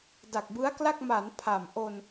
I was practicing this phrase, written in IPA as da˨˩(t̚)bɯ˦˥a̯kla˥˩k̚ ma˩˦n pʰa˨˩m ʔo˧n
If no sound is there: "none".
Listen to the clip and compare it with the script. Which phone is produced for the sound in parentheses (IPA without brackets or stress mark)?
k̚